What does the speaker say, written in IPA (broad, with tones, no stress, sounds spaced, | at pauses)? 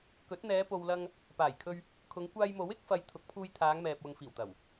k ɵ˨˥ t̚ n̪ ɛː˨˧ p o˨ w l ɐ˧ ŋ | p aː˨˩ j kʰ ɵ˧ ɥ | kʰ ʊ˨˧ ŋ kʷ aː˧ j m o˨˥ w ɪ˨˥ k̚ f ɐ˨˧ j t̪ʰ ʊ˨˥ k̚ pʰ uː˧ j t̪ʰ aː˨˧ ŋ m ɛː˨ p̚ w ʊ˨ ŋ f iː˨˩ w t̪ ɐ˨˩ w